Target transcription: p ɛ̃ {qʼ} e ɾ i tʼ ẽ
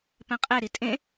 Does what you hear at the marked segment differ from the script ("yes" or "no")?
no